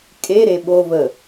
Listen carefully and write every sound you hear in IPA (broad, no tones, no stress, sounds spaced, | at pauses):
kʼ e ɾ e ɓ o v ə